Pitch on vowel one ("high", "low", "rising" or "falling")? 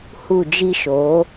falling